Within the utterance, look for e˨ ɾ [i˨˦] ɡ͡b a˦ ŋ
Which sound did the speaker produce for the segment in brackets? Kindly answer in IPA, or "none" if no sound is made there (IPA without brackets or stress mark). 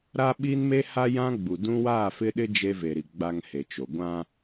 i˨